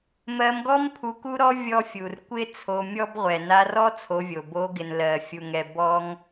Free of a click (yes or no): yes